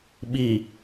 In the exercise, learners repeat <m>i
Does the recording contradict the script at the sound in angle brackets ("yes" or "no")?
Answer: yes